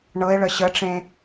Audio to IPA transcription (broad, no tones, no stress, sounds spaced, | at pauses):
ɳ ɤ e̯ ɭ ə ɕ ə ʈ͡ʂ ẽ